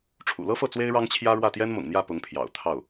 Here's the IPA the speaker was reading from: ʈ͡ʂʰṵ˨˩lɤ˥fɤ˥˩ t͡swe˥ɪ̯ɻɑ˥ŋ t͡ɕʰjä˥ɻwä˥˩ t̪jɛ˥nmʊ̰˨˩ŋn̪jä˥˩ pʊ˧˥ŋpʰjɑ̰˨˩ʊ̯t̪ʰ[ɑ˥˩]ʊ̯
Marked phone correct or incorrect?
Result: correct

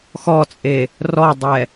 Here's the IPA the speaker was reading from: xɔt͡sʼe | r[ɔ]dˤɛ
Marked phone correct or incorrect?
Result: correct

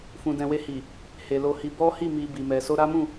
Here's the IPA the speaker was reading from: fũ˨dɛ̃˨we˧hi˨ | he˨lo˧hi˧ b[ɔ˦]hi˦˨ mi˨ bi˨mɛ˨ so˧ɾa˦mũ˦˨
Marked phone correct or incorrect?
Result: correct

